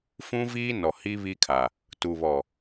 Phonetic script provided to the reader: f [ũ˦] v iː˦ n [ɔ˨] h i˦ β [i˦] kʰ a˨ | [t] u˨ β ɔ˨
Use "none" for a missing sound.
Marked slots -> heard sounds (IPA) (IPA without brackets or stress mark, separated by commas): ũ˦, ɔ˨, i˦, t